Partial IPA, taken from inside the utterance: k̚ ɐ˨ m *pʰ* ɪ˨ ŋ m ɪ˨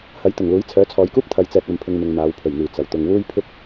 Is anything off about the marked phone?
no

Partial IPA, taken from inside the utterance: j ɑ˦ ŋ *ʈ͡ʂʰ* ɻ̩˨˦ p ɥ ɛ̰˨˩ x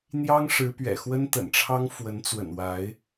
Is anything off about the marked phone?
yes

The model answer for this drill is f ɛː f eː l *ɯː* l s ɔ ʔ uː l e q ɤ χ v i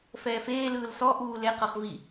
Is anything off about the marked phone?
no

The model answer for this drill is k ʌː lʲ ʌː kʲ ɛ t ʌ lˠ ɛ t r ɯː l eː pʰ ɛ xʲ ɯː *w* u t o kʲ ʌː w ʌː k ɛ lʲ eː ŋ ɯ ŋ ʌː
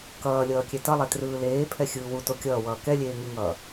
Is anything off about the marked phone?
no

